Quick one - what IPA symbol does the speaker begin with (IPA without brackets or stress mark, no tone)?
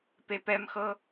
p